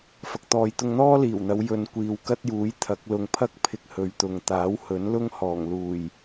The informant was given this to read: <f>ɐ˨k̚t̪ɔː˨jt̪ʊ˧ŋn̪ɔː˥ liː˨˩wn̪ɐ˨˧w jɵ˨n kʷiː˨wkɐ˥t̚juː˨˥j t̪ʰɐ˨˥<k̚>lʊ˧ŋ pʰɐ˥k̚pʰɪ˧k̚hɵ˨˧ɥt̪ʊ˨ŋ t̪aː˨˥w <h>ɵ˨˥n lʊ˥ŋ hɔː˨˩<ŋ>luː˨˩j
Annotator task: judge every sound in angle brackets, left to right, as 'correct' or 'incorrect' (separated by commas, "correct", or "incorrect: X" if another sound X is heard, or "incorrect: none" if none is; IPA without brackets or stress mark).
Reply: correct, correct, correct, correct